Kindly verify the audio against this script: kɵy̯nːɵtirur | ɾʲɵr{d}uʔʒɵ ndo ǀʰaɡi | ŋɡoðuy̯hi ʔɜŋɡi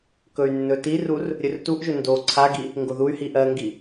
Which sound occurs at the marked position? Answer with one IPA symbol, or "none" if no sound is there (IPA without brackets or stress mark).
t